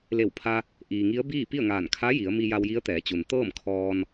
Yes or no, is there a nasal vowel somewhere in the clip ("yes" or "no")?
no